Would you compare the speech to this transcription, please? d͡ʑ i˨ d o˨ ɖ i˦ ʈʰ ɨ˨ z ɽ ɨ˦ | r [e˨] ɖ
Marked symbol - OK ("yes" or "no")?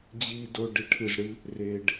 yes